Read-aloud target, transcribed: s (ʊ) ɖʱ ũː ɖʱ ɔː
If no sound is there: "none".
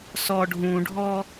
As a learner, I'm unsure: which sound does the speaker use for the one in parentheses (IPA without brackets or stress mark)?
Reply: ɔ